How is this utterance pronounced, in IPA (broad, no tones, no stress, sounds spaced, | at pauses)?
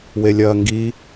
w e lʲ ɐː ŋ ɡ i